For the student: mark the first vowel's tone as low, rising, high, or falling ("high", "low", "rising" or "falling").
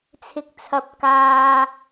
low